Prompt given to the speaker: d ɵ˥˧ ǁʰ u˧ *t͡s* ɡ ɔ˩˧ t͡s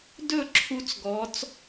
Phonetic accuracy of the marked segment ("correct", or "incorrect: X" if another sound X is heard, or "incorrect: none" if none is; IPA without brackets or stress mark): correct